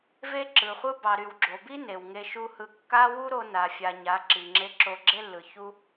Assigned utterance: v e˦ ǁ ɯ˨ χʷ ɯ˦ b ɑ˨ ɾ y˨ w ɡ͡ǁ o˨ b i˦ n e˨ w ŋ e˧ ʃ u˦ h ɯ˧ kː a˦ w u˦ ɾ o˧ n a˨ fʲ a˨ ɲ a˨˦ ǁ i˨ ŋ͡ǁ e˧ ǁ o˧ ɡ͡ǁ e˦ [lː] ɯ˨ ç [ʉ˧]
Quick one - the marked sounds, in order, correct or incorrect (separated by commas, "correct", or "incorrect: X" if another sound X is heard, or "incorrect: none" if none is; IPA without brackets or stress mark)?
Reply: correct, incorrect: u˧